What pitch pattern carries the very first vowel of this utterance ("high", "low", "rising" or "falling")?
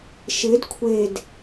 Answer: rising